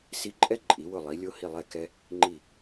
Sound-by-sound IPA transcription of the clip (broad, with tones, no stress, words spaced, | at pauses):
si˧ǃʼɛ˥ ǃʼi˩˧wʊ˧˩lˠi˩˧lʲo˧ hi˧˩lˠɛ˧˩kɛ˧ | ŋ͡ǃi˧˩